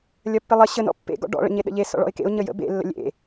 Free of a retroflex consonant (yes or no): no